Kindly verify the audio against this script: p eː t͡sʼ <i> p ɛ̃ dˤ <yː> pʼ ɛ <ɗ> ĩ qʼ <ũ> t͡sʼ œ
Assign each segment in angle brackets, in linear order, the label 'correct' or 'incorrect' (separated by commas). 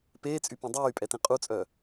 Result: incorrect, correct, incorrect, incorrect